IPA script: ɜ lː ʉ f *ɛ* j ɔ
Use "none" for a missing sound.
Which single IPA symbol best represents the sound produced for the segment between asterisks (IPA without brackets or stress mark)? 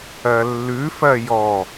ɜ